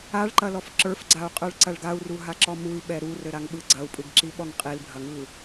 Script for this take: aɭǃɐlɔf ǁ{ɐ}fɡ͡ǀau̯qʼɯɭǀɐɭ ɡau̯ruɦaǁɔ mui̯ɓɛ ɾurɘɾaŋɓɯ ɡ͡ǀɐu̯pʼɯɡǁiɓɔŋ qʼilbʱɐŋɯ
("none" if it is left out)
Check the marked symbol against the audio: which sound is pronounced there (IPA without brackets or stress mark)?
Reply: ə˞